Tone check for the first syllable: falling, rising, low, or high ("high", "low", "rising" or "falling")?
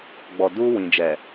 low